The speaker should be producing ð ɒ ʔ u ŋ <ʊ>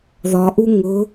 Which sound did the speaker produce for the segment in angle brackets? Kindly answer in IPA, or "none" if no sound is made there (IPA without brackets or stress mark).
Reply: ʊ